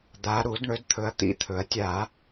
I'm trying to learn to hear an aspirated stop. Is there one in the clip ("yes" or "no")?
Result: yes